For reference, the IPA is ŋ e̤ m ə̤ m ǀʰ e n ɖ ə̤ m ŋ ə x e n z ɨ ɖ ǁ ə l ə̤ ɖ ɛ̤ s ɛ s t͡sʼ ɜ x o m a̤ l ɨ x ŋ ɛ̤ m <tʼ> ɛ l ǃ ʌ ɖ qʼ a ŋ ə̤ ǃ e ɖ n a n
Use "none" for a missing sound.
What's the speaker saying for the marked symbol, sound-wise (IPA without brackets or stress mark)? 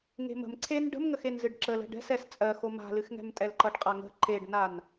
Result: tʼ